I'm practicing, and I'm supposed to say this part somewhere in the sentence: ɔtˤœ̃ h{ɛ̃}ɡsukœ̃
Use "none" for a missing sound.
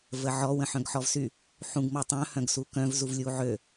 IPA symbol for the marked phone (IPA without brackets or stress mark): œ̃